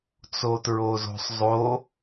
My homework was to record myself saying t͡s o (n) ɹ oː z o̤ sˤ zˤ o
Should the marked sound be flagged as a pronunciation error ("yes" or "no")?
yes